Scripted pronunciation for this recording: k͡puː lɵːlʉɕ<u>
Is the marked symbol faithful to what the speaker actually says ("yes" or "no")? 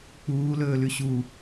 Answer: yes